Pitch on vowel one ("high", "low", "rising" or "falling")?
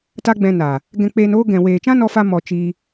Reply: high